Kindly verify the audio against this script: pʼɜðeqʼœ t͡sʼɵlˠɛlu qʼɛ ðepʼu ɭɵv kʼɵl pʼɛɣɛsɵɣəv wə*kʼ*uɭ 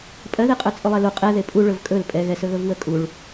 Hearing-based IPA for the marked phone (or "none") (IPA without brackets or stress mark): kʼ